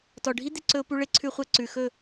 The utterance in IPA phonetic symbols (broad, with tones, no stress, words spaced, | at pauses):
tɔ˨ɖʱi˦ d̪e˧ǀɵ˧ʊ̯pu˧ɭe˧ ǀʰʉ˧χʷɛ˧ǀʉ˨xɵ˦˨